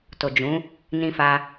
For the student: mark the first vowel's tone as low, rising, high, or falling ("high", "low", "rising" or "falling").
low